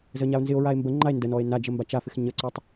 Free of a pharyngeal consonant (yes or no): yes